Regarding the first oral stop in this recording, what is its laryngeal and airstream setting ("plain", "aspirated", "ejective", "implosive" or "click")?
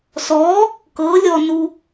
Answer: plain